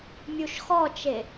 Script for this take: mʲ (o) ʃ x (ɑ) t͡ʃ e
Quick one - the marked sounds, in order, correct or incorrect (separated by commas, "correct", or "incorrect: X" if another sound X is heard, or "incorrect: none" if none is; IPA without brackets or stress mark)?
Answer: incorrect: u, incorrect: ɔ